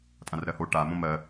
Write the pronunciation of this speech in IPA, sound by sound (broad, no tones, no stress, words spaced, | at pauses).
tʼãrɾɜho ʈa mõmɜ